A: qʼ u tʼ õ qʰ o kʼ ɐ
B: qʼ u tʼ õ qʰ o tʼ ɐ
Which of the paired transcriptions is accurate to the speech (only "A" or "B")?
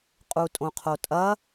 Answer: B